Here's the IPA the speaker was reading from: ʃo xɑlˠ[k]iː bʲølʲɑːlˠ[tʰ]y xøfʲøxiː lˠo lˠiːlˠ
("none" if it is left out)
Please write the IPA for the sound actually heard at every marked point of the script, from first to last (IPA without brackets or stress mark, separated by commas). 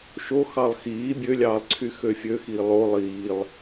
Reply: x, ǀʰ